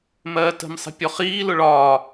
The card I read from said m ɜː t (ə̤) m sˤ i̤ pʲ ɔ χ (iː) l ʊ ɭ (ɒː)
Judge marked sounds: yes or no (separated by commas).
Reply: yes, yes, yes